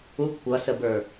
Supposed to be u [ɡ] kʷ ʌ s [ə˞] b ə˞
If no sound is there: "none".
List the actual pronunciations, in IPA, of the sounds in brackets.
ɡ, ə

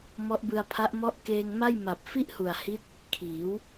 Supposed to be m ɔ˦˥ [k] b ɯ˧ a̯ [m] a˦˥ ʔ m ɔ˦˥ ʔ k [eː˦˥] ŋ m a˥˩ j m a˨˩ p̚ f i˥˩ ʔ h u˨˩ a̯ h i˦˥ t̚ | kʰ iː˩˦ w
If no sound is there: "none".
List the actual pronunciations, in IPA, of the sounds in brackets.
ʔ, pʰ, eː˧

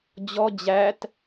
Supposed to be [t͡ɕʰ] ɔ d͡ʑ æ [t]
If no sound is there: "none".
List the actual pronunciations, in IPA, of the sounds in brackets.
d͡ʑ, t

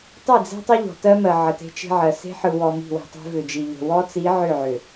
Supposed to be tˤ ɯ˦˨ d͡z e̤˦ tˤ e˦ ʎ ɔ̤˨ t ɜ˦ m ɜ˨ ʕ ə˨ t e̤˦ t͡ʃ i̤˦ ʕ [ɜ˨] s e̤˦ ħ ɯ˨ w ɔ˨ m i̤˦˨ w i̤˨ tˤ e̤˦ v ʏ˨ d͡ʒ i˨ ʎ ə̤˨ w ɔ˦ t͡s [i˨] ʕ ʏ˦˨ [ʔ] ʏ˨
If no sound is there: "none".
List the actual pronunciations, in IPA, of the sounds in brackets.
ɜ˨, i˨˦, ʕ

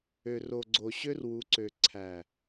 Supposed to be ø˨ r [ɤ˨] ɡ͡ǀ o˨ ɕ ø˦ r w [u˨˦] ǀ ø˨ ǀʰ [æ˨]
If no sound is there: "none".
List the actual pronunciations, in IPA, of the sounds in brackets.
o˨, u˨˦, æ˨

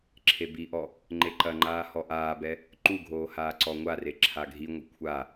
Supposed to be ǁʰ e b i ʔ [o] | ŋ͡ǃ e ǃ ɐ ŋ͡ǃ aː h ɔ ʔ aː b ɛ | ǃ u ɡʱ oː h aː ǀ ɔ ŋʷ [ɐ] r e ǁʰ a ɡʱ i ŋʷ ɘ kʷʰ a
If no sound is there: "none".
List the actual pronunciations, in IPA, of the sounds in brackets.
ɔ, a

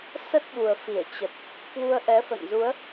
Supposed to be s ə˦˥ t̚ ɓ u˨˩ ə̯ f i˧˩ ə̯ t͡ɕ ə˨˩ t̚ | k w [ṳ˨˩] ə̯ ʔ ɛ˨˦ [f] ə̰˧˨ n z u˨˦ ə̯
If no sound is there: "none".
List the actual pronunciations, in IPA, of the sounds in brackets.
u˧, f

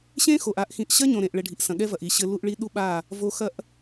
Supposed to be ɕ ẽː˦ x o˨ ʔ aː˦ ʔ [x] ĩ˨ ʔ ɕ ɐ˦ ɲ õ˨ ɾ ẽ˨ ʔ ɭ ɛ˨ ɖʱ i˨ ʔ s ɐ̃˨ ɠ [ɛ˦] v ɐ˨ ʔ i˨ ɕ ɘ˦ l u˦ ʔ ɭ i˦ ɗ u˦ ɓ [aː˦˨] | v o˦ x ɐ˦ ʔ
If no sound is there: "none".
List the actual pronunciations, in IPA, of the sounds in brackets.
x, ɛ˦, aː˦˨

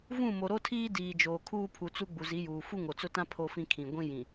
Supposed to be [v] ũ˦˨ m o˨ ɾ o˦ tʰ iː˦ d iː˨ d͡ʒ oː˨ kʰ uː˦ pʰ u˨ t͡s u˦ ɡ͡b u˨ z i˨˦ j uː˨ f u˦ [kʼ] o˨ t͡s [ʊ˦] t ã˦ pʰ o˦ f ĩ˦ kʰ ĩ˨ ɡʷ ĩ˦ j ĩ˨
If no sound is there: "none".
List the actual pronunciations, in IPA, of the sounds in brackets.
v, ŋ, ʊ˦

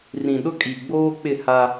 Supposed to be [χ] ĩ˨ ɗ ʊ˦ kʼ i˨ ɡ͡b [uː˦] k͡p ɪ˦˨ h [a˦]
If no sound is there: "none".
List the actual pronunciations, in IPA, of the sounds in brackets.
r, oː˦, a˦

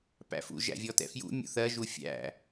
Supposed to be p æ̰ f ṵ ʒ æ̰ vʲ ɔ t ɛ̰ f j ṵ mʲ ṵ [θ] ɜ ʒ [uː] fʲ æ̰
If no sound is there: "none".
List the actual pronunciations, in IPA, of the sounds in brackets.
θ, u

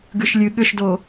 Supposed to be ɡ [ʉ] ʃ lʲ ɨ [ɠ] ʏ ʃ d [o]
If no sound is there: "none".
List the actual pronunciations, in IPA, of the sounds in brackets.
ʉ, ɠ, o

